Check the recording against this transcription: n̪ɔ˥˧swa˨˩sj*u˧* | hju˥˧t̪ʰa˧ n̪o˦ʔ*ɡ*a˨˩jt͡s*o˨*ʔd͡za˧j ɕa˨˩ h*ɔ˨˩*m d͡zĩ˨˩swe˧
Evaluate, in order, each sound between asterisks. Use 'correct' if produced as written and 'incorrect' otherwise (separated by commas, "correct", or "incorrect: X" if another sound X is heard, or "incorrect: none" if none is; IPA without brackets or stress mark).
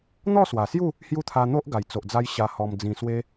incorrect: u˥˧, correct, correct, correct